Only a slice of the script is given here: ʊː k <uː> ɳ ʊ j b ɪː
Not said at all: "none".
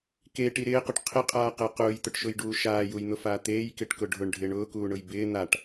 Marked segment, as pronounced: uː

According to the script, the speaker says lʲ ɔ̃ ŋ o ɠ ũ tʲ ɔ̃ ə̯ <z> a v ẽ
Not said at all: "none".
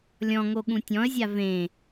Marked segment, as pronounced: zʲ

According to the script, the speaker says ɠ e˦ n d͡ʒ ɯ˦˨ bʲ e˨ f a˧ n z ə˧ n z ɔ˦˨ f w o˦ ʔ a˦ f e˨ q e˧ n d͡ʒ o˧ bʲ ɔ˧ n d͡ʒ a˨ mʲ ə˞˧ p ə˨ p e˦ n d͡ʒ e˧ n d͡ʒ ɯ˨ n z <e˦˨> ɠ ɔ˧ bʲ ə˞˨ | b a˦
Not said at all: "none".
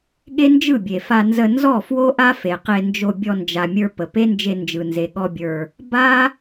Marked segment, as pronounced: e˨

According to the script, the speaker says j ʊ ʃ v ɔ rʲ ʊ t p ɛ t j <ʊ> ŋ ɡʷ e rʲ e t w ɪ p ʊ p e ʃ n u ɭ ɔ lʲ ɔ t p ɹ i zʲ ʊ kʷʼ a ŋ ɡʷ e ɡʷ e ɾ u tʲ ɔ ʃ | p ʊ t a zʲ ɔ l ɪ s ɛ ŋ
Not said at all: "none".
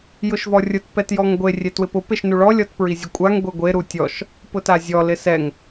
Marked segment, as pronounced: ɔ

